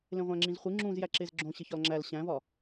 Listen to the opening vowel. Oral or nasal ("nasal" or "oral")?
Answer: nasal